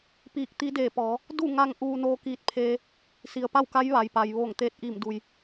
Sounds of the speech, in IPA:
piː˧˩k̚t̪i˧˥deː˧˩pɔː˩˧ | du˥˨ŋa˧ŋ ʔuː˧noː˧kiː˧t̚pʰeː˧ | si˩ə̯pa˥˨wka˧˥j ʋa˩jpa˩j ʋoː˧˩ŋt̪eː˧˥t̚ʔiː˧˩mdu˩j

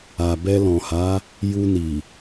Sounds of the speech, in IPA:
a˨ bɛ˧lɔ̃˨ha˨˦ | ju˧ni˨

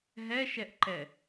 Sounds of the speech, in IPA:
ɦɛʃɛʔǃɛ

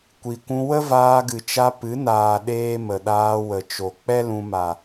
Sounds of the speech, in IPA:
kʷi˨kʷũ˧ wə˦vaː˧ɡɨ˨t͡ʃa˧ pɨ˨˦naː˨ ɗeː˦mə˨ ɗaː˧wə˨t͡ʃo˨ k͡pɛ˦ lũ˧ ma˨

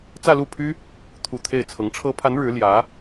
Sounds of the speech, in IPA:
t͡sä˥˧lu˥˩pʰy˥ | t̪ʰu˨˩ t̪ʰe˥˩ɪ̯t͡sʰɤ˧˥ŋ ʈ͡ʂʰɤ˧˥pʰa˧˥n ɻɻ̩˧˥ljä˧˥

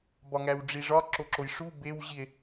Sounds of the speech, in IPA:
bɒŋæwɖ͡ʐiʐɒ ǁoǁojʂu bew ʑie̯

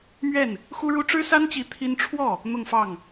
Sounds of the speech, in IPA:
mɥɛ˥˩n | xu˥ɻu˥ ʈ͡ʂɻ̩˥sa˥nt͡ɕi˧˥ t̪ʰi˥n ʈ͡ʂʰwɔ˥˩ | n̪ʊ˥˧ŋfɑ˥˩ŋ

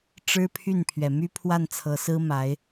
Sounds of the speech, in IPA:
ʈ͡ʂɻ̩˥pʰy˥˩npʰɥɛ˩ my˥pʰwa˥˩nt͡sʰɤ˧˥sɹ̩˥ ma˧˥ɪ̯

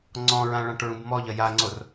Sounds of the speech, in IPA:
ŋ͡ǀɔ̃ɹã ɭãʈɹũbmɔʎɐ jaŋ͡ǀor

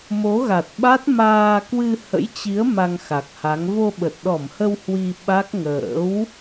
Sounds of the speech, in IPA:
mo˨˦ɣa˨˩t̚ɓa˦˥t̚ maː˧ kwɨ˧hə̰˧˥jt͡ɕi˨˦ə̯ ma˧ŋxa˨˩k̚ha˨˦ŋ vo˧ɓə˨˩t̚ɗɔ˧˩mhə˧w hwi˧ɓa˦˥k̚ ŋə̰ː˧˥w

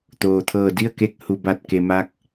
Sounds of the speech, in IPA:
t̪oː˩t̪ʰɤː˧˩ di˥˨ə̯ke˧k̚ hu˩ba˧˩t̚ke˩ ma˧˥k̚

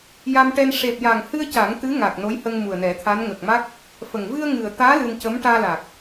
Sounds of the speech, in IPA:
ja˧mʈɛ˧n ʂe˨˩p̚ja˨˩ŋhɨ˧ə̯ ca˨˩˦ŋt̪ɨ˧˥ŋa˨˩k̚ no˧˥jhə˧ŋ mu˨˩ə̯nɛ˨˩˦t̪ʰa˧˥n ŋə˨˩k̚ma˦˥k̚ | fə˨˩ŋ vɨ˧ə̯ŋɨ˨˩ə̯t̪aː˧˥ lɨ˧n cə˧˥m ʈaː˧la˨˩k̚

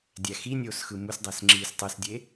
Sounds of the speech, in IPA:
dʲæxinʲoːsxɯ musdˤæs ŋ͡ǁiːstˤɯsdʲe

